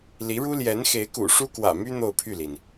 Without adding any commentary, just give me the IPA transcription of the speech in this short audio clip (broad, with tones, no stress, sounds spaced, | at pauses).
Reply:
l i˧˥ ɻ u˥ l j ɛ˧˥ n x e˧˥ ɪ̯ k ṵ˨˩ ʂ u˥ k w ä̰˨˩ m y˥ n̪ o˥˧ ʊ̯ pʰ y˥˩ l i˩ n